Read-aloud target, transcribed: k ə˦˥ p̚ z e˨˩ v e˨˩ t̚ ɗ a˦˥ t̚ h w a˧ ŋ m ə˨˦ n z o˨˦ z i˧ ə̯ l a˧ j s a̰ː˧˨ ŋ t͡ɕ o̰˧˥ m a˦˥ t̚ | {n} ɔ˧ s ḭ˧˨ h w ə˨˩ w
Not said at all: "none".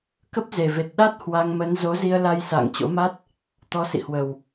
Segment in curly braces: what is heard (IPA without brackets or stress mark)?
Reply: t̪